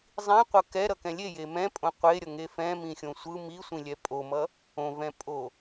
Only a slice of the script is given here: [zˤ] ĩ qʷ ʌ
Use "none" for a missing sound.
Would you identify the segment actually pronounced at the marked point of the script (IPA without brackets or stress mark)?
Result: zˤ